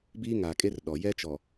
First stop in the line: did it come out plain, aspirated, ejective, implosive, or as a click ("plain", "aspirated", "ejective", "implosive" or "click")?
plain